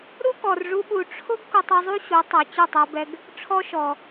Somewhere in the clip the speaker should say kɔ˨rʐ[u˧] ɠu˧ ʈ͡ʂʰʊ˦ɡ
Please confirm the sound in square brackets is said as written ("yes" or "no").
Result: yes